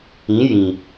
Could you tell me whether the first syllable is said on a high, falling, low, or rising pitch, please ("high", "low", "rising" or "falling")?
rising